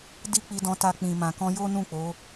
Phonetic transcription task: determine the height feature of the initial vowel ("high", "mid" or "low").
high